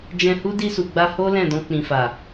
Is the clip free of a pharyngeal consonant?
yes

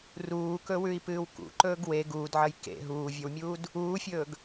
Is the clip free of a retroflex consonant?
yes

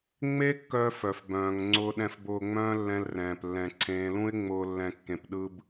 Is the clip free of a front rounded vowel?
no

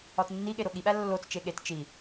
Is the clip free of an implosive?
no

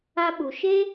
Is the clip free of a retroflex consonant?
yes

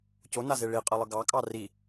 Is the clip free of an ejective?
no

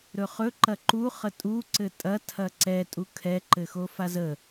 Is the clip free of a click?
no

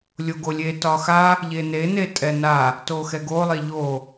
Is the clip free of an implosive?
yes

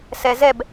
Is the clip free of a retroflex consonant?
yes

